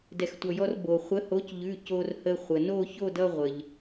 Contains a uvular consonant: yes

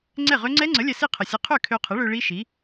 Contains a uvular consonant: yes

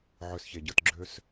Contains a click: yes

